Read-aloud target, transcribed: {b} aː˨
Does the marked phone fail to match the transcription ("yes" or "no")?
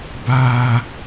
no